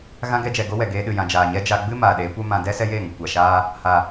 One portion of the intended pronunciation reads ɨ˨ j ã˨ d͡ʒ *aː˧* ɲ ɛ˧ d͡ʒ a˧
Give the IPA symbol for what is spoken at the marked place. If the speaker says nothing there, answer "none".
aː˨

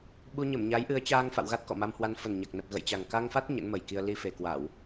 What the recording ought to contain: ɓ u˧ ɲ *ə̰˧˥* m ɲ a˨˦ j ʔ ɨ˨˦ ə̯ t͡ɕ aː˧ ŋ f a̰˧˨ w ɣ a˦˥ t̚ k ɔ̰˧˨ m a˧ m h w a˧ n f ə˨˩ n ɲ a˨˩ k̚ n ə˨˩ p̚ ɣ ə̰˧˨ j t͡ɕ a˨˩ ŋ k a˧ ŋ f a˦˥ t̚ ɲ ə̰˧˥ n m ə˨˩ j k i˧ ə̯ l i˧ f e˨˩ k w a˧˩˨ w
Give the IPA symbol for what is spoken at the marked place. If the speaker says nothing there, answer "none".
ə˧˩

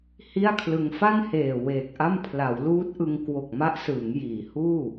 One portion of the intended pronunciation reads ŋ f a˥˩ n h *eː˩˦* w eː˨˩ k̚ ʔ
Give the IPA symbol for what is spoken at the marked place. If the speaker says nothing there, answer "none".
eː˨˩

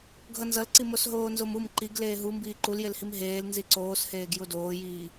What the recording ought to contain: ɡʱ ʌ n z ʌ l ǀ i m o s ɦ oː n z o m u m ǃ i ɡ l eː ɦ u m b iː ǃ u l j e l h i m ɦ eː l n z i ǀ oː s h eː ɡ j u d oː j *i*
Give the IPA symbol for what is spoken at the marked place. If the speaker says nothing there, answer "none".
iː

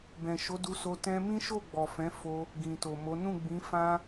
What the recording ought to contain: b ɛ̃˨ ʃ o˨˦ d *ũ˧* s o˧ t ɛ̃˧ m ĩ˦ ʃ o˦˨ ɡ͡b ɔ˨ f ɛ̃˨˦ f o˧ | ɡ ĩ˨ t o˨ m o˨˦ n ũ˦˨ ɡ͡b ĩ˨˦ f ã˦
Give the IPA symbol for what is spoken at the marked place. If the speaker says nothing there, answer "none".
u˧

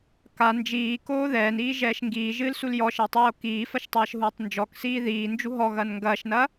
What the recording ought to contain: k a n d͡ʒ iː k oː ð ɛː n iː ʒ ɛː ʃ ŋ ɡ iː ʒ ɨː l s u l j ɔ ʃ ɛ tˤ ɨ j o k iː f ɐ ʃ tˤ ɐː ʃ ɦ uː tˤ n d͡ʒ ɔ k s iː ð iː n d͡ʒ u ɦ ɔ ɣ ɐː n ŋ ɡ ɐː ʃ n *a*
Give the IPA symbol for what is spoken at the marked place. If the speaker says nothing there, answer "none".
ɐ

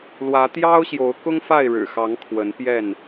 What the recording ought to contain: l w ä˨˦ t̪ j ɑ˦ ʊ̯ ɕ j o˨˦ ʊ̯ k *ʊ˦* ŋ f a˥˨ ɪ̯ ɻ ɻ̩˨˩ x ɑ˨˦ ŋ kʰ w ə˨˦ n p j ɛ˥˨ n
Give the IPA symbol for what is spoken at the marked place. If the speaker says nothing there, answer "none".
ʊ˦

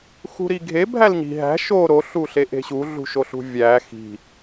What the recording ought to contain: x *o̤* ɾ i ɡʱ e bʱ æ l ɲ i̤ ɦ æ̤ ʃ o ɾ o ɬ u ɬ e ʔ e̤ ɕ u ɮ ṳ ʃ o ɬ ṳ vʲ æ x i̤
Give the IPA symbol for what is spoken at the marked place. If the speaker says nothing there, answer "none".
ṳ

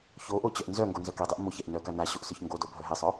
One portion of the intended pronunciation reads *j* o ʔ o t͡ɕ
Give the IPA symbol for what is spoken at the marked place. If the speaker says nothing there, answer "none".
ç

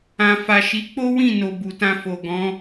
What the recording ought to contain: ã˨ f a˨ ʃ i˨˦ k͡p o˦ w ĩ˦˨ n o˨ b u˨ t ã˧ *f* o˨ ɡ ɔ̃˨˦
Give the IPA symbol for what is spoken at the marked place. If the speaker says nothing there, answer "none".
f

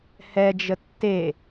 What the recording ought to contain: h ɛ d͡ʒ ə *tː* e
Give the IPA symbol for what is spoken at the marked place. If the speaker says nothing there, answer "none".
tː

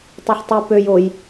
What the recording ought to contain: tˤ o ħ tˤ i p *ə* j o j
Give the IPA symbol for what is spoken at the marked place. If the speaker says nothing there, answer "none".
ø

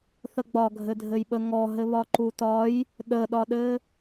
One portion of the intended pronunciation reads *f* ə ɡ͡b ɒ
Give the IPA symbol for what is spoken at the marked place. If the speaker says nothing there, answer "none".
θ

